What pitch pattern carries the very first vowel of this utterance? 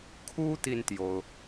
high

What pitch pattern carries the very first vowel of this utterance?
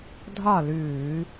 falling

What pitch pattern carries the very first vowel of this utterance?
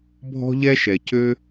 high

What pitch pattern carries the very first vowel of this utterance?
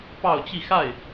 falling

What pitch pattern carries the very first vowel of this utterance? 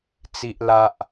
high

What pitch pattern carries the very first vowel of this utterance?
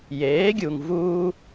rising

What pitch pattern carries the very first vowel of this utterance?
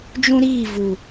high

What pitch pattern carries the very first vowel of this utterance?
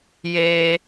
high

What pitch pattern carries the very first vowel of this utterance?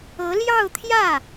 rising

